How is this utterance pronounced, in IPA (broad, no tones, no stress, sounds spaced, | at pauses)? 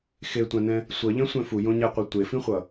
x e tʷ ã n ɛ̃ | sʷ ʌ ʎ ɛ̃ sʷ ɛ̃ f u j õ ɲ ɛ qʷ ʌ tʷ e f ĩ χʷ ʌ